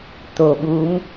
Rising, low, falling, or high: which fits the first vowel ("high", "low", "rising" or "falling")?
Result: low